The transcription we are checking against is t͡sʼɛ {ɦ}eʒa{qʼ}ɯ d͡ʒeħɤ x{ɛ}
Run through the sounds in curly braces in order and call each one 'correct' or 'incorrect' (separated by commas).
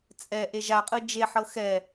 incorrect, correct, correct